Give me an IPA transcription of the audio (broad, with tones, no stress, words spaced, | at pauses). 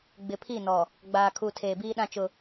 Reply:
ɡ͡bɪ˨pʰi˦˨nɔ˨ | ɡ͡baː˨kʰu˨ tʰeː˨biː˦ɗã˦ t͡ʃʊ˦